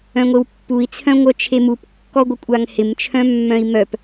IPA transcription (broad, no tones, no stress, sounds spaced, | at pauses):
œ̃ ŋʷ e w pː u i̯ t͡sʰ œ̃ ŋʷ œ t͡ʃʰ e m u p kː ɔ ɡʷ ɪ kʷʼ a ŋ h ɪ m t͡ʃʰ œ̃ mː œ̃ i̯ m œ p